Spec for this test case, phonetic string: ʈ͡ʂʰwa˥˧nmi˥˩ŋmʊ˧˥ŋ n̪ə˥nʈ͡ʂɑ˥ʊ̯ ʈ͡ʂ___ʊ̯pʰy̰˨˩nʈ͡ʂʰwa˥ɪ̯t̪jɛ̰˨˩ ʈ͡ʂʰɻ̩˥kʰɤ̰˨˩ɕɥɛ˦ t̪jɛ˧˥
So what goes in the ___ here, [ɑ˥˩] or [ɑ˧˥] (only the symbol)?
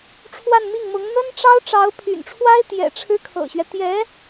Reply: ɑ˧˥